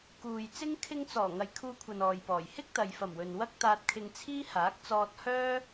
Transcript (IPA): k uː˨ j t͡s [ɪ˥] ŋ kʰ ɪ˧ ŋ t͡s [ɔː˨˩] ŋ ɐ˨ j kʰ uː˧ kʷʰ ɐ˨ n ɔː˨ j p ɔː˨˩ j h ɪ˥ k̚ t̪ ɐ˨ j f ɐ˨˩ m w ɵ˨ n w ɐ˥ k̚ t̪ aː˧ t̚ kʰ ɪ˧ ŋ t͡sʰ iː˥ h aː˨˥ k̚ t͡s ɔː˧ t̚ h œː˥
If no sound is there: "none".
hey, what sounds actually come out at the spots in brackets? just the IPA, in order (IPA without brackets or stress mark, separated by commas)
ɪ˥, ɔː˨˩